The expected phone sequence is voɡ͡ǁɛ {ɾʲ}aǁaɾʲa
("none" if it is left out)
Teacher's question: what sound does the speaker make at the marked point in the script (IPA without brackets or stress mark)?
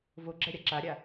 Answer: ɾʲ